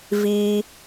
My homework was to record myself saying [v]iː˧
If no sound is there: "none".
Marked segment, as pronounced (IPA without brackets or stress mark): v